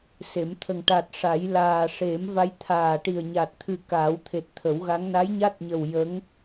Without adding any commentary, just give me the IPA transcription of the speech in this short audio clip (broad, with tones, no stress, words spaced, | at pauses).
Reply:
se˨˩˦m t̪ʰə˨˩ŋ ʈa˨˩t̚ʂa˨˩˦jlaː˨˩ ʂe˨˩˦mva˧˥j t̪ʰaː˨˩ʈi˨˩ə̯ɲa˨˩t̚ t̪ʰɨ˨˩ kaː˨˩˦wt̪ʰe˨˩t̚t̪ʰə˨˩˦wɣa˧˥ŋ na˧˥j ɲa˦˥t̚ɲə˨˩w jə˧˥ŋ